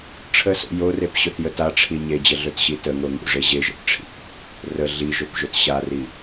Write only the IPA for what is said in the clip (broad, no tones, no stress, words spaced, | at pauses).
ʈ͡ʂʰəso̰ jorepɕɵθjə taʈ͡ʂʰi ɲed͡ʑəɮɵtɕi təŋoŋṵʐe ʑeʒə̰tʈ͡ʂʰḭʔ | rə ɮiʒɵpʒɵt ɕari